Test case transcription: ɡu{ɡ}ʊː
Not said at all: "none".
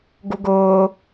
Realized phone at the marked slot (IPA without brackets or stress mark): ɡ